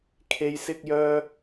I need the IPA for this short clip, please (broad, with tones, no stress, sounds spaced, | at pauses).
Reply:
kʰ e˥ j s ɪ˥ k̚ j œː˥